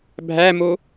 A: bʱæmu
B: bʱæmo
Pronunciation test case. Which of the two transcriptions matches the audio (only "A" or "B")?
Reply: B